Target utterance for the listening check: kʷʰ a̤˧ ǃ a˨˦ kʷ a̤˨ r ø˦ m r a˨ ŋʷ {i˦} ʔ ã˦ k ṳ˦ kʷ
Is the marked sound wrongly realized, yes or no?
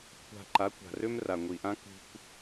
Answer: yes